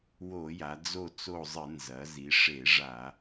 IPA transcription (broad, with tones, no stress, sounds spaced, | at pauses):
w o˧˩˧ j a˩˧ d͡z o˦˨ t͡s o˦˨ zˤ ɨ˧˩˧ n z ɐ˩˧ z i˩˧ ʂ e˧˩˧ ʐ a˧˩˧